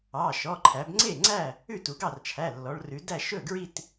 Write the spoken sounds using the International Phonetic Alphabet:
ɑ˩˧˩ ʃ ɔ˩˧˩ ǃʰ æ˩˧ b ŋ͡ǀ e˥˩ ŋ͡ǀ æ˥˩ | ʉ˥˩ t u˩˧ ɡ ɑ˥˩ r t͡ʃʰ æ˩˧˩ lː ɔ˩˧ ɭ r ʉ˩˧ d æ˥˩ ʃ ɵ˥˩ ɡ ɹ i˥˩ t

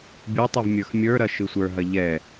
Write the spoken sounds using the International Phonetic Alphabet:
bʲ u tˤ u v mʲ ə˞ x mʲ ə˞ ɾ ɐ ʃ ɯ sʷ ə˞ ɦ ɐ ʎ ɛ

